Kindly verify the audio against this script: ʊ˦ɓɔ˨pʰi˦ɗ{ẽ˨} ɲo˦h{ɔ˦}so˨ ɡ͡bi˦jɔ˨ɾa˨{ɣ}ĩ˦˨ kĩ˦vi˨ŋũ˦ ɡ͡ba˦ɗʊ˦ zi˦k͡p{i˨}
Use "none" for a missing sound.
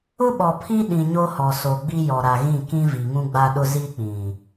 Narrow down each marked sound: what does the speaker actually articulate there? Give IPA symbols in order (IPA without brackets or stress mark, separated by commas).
ĩ˨, ɔ˨, ɣ, ĩ˨